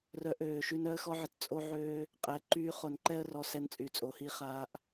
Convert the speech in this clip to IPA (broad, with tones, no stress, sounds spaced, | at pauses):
r œ˨ ʔ øː˨ ʃ y˧ n œ˧ ə̯ x ɔ˧ ʕ ə˨ t t͡sʼ o˧ ʕ øː˧ | qʼ ɛ˨ ǃ yː˧ χ o˨ n ǃ ɛ˦ ə̯ r ɔ˧ s ɛ˧ n t͡sʼ y˨ t͡sʼ o˨ h i˧ χ aː˧ ʔ